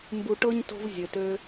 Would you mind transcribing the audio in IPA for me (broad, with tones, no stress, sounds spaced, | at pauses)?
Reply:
m b u˧ ʈ ɤ˦ ɲ t o̤˦ v zʲ ø˨ t ø˧